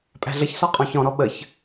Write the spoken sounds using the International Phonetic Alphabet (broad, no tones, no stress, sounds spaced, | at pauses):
pʼ æ̤ ɮ ə ç s ɔ qʼ ɔ̃ ç ɔ̃ ɾ ɔ ɓ ə ç